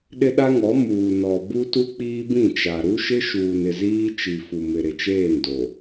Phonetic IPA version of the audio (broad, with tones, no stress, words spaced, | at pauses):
ɗɪ˦ɗa˦ŋɔ˨˦ muː˨nɔ˨ bu˦tu˦ k͡piː˦bĩ˦˨t͡ʃa˨ ɾu˦ʃɪ˦ʃuː˨n ɪ˨ziː˦t͡ʃi˨ fu˨mɪ˨ ɾɪ˨t͡ʃeː˦˨ndo˨